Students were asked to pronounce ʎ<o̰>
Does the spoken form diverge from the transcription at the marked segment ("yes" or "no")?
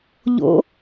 no